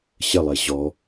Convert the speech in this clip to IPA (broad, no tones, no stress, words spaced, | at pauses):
ɕəlˠe ʑɔ